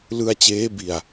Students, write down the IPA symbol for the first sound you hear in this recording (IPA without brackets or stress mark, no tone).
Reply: l